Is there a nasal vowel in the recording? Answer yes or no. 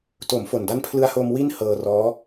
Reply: no